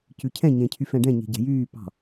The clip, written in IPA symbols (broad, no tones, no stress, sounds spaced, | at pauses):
c ʉ cʰ ɛ̃ ɲ ẽ cʰ y f ɛ̃ ɖ ɛ̃ ɲ e̤ ɟ ɛ̤ j yː p ɑ̤